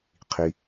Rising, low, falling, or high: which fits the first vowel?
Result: low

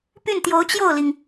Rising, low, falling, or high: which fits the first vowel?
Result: falling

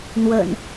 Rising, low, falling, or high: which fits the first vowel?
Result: low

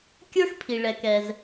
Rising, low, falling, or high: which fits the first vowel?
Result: high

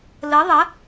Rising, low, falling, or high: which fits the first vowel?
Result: rising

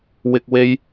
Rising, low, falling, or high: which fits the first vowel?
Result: low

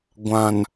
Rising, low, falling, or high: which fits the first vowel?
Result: low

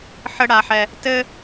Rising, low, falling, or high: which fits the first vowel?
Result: high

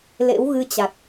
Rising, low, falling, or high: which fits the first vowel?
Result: rising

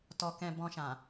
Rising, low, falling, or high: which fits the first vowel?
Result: low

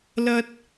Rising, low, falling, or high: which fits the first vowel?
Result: high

